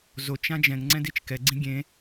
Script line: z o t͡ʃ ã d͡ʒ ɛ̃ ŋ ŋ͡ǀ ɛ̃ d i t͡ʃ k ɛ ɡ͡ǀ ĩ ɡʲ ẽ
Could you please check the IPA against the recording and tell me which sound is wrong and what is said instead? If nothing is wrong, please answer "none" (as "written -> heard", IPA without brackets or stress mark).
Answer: none